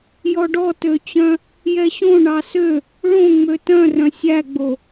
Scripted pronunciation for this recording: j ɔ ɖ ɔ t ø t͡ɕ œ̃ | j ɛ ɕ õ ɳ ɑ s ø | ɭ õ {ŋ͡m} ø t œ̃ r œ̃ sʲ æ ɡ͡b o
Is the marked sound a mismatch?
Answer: no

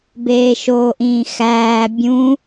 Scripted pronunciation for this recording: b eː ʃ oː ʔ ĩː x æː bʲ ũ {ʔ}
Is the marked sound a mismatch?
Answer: yes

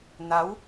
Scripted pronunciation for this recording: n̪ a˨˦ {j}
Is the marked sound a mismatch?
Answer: yes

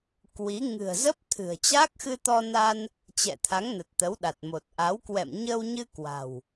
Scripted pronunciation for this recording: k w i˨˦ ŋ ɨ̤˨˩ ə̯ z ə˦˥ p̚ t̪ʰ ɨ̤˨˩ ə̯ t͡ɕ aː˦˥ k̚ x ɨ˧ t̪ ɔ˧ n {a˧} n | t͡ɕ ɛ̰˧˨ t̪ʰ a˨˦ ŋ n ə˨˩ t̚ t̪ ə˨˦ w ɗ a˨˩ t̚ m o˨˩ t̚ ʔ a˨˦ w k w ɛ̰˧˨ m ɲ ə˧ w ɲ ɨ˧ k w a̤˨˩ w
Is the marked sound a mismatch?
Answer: no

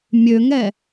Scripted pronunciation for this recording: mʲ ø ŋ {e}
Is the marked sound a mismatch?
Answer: yes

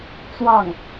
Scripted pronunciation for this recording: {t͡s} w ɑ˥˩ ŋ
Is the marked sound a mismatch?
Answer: no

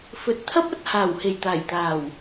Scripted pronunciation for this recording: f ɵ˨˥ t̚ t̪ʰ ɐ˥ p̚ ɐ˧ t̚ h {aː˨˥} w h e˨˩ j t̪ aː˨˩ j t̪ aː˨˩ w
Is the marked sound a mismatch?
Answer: yes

